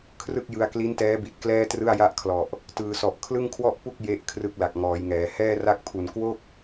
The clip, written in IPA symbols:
kʰ r ɯ˥˩ k̚ j ɯ˧ a̯ k l i˦˥ n t ɛː˦˥ b i˨˩ t̚ k l ɛː˥˩ t r ɯ˥˩ a̯ j a˥˩ ʔ kʰ l ɔ˨˩ ʔ | t ɯː˩˦ s ɔ˨˩ ʔ kʰ l ɯ˥˩ ŋ kʰ w ɔ˥˩ ʔ p u˥˩ k̚ j e˦˥ ʔ kʰ r ɯ˦˥ k̚ l a˨˩ k̚ ŋ ɔː˩˦ j ŋ ɛː˩˦ h ɛː˥˩ r a˥˩ k̚ pʰ u˨˩ n k w o˥˩ k̚

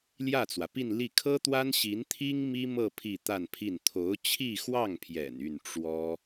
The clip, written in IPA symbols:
l j ä˥˩ t͡s w ä˩ p i˥˧ n l i˥˩ kʰ ɤ˥ t̪ w a˥ n ɕ i˧˥ n t̪ʰ i˥ ŋ m i˥ m ɤ˥˧ pʰ i˥˧ t̪ a˥˧ n pʰ i˥˩ n t̪ʰ o˧˥ ʊ̯ t͡ɕʰ i˥˧ x w ɑ˥˩ ŋ pʰ j ɛ̰˨˩ n y˥˩ n ʈ͡ʂ w ɔ˥

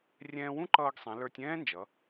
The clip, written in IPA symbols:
rʲ ɛ̃ː˧ w ũ˥ ǃ ʌː˧ ɡ sˤ ɛ̃˩˧ l ə˞˧ tʲ ɛ̃ː˥ n d͡ʒ ʌ˩˧

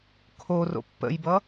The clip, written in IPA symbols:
kʰ o r o̰ pː ə̰ j b ʌ

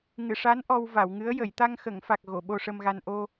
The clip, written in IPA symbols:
ŋ ɨ˨˩˨ ʂ a˧˥ n ʔ ɔ˧ w v a˨˩˨ w ŋ ɨ˧˥ ə̯ j ə˨˩˨ j t̪ a˧ ŋ x ə˨˩˨ ŋ f a˨˩ k̚ ɣ o˨˩˨ ɓ o˧ ʂ ə˧ m ɣ a˧ n ʔ o˧

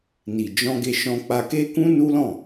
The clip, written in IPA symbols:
n i˨ d͡ʒ ɔ̃˧ ɡ e˧ ʃ ɔ̃˧ k͡p a˧ k e˦ k ũ˦ n u˦ l ɔ̃˦˨

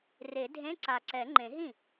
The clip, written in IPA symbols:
r e˨˩˦ dʱ ẽ˧˥˧ ǀ a˨˩ ǀ ɛ˨˩˦ ŋ͡ǃ ẽ˨˩˦ ɦ ĩ˥˩

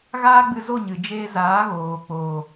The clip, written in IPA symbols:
ɣ aː˦ ɡ͡b ɨ˧ z o˦˨ ɲ ɨ˨ d͡ʒ eː˧ z aː˨˦ ɣ oː˨ k͡p o˨

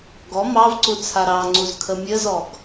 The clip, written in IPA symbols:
ɡ ɔ m ɑ v ǀ u t͡sʰ a ɾ ɑ ŋ͡ǀ u z kʰ ə mʲ ə z ɔ ɡ

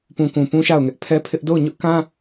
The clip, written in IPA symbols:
p ũ˨ k ũ˨ p ũ˦ ʃ a˦˨ ʊ̯ ŋ ɛ˦ ʔ pʰ ɛ˦ pʰ ɪ˦ ʔ d o˦˨ ʊ̯ ɲ ʊ˦ ʔ k ã˦

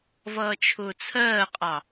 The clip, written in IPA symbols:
v ʌː t͡ʃʰ ʊː t͡sʰ ɜː qʼ ɑ

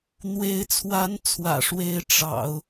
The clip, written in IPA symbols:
n̪ w e˧˥ ɪ̯ t͡sʰ w a˧˥ n t͡sʰ w ä̰˨˩ ʂ w e˧˥ ɪ̯ ʈ͡ʂ ɑ̰˨˩˦ ʊ̯

